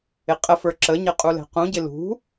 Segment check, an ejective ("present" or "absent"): present